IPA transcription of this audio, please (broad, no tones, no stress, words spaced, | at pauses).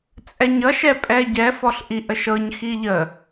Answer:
t͡sʼɛɲʌʃɛpʼɛ ɟɛfɔɬʔi ʔəʃɤɲxi ʎə